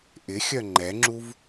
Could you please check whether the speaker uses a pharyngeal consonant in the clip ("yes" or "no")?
no